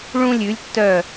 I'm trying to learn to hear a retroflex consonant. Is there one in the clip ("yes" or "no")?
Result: yes